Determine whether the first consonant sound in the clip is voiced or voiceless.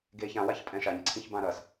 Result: voiced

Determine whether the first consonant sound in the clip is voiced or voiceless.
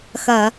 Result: voiceless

